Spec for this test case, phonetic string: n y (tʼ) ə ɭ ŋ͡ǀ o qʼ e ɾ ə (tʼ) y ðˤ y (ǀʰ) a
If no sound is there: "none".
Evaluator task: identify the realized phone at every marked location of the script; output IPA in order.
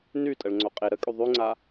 tʼ, kʼ, ŋ͡ǀ

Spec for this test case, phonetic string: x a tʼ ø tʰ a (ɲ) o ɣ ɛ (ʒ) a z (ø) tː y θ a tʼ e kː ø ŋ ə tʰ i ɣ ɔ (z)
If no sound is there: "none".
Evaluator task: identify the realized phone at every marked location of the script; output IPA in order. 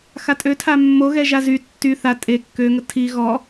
mː, ʒ, y, none

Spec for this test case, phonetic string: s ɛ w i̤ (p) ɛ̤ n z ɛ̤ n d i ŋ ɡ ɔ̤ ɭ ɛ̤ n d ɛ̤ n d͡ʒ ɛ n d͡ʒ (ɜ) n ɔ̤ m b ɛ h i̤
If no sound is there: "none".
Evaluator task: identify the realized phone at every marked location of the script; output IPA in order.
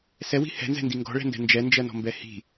h, ɜ

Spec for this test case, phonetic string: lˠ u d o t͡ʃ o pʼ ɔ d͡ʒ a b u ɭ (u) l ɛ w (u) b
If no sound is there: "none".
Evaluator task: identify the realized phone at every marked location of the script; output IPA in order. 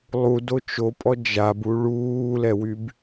uː, y

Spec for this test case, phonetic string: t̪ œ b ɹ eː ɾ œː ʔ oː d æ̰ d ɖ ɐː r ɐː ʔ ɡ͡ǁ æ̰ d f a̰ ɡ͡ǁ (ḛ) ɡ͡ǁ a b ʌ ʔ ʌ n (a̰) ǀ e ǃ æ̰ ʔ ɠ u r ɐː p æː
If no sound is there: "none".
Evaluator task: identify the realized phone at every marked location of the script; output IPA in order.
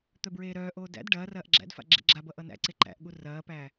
ḛ, æ̰

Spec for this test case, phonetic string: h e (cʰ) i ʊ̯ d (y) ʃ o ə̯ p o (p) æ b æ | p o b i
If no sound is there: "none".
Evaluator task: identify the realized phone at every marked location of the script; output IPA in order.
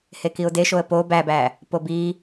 k, e, b

